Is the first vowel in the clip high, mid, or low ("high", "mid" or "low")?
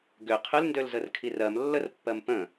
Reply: high